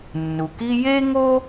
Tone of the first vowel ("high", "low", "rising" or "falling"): low